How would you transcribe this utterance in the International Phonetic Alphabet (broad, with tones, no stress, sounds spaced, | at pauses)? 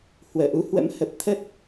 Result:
h w əː˧˩ ʔ u˨˦ h w ə̰˧˥ m h ə˨˩ p̚ t̪ʰ ə˦˥ t̚